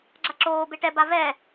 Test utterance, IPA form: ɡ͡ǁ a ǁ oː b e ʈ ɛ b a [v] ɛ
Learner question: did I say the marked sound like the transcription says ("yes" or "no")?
yes